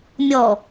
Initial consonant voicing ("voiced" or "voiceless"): voiced